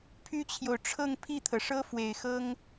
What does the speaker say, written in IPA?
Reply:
pʰ y˥ t͡ɕʰ j o˨ ʊ̯ ʈ͡ʂʰ ɤ˥˧ ŋ pʰ i˥˩ t̪ʰ ɤ˩ ʂ ɤ˥ f w e˨˩ ɪ̯ x ɤ˥ ŋ

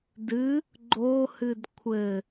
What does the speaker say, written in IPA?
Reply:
d ɨ | ɡ͡ǃ o h ɨ d kʷʰ ɘ

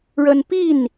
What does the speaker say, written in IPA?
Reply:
ɻ ə˦ n p i˥˨ n

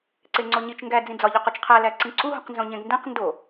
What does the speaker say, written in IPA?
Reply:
ǀ e ŋ͡ǀ o ɲ i t͡ʃ ŋ ɡ æ d͡z ĩ d͡z ɒ ʎ o q u t͡ʃ qʰ æ l æ ǀ ĩ ǀ u ɦ ũ q n z õ ɲ ẽ ɡ n d ẽ q n d o

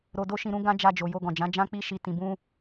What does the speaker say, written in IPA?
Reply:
ɾ o˧ d o˦ ʃ ĩ˧ ɾ ũ˦ ɡ ã˦ d͡ʒ a˧ d͡ʒ o˨ j o˧ ɡ ɔ̃˨ d͡ʒ ã˨˦ d͡ʒ ã˦ k͡p i˦ ʃ i˧ t ĩ˨ b ũ˧

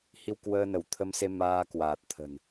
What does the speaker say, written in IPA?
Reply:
h i˧ w k w əː˧ n ə˧˩ w t̪ʰ ə˧ m s e˧ m aː˧ k w aː˨˩ t̚ t̪ʰ ə̤˨˩ n

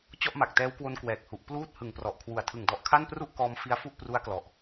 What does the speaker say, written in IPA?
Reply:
t͡ɕ ɔ˥˩ ʔ m a˨˩ k̚ t ɛː˦˥ w k w o˧ n k w ɛː˨˩ k̚ h u˨˩ ʔ p l uː˥˩ t̚ h ɯ˨˩ ŋ p r ɔ˨˩ ʔ kʰ w u˨˩ a̯ tʰ ɯ˨˩ ŋ d ɔ˨˩ ʔ kʰ a˥˩ n p r u˥˩ ʔ k ɔː˧ m f i˧ a̯ f u˥˩ ʔ p r u˦˥ a̯ k l ɔ˨˩ ʔ

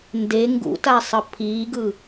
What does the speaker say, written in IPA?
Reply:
n d e ŋ ɡ ṵ t a sˤ ʌ pʰ iː ɡ ɯ

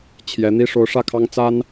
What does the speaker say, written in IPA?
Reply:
t͡ɕʰ j ɛ˧˥ n̪ i˥ ʂ o˧˥ ʊ̯ ʂ ä˥˩ kʰ ɑ˥ ŋ t͡s a˥ n

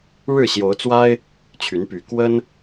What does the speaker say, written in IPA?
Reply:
ɻ ɻ̩˥˨ ɕ j o˨˦ ʊ̯ t͡s w a˦ ɪ̯ | t͡ɕʰ y˨˦ n p y˨˩ k w ə˦ n

